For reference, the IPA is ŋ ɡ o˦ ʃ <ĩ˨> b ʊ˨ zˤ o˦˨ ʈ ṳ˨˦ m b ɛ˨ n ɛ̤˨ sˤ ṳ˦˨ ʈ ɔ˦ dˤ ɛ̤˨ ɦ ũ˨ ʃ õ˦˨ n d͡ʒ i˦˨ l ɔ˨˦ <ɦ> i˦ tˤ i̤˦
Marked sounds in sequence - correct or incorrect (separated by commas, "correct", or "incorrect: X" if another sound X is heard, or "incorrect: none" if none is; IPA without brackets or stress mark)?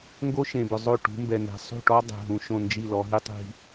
incorrect: ẽ˨, correct